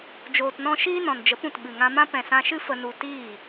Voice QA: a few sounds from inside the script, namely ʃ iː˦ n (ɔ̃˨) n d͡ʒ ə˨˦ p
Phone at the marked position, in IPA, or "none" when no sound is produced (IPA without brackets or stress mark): ɔ̃˨